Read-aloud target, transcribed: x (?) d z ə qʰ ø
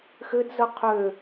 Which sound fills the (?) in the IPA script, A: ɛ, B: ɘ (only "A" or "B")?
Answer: B